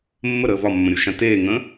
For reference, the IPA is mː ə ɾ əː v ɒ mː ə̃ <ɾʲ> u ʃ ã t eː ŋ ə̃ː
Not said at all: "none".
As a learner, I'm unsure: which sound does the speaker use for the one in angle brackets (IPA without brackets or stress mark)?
ɾʲ